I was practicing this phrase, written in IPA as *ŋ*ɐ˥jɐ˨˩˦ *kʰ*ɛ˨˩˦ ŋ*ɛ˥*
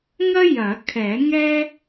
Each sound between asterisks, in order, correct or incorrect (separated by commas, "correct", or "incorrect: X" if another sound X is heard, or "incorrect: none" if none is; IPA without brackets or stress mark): correct, correct, correct